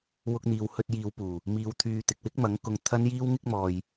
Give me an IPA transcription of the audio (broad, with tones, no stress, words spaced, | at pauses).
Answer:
wʊ˧k̚n̪iː˨whɵ˧t̚ jiː˨wpuː˨˩ | miː˧wt̪ʰyː˧t̪ɪ˨k̚ wɪ˥k̚mɐ˨˥ŋ kʊ˧ŋ t̪ʰɐ˥njiː˥wŋɪ˥k̚mɔː˨j